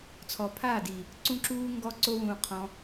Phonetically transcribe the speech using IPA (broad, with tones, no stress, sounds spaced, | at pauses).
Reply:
t͡sʰ ɔ˨ pʰ aː˦˨ d i˨ | ǀ ũ˦ ǁ uː˦ ŋ ɡ ɔ˦ ǀ o˦ w ũː˧ qʰ ɔ̃˧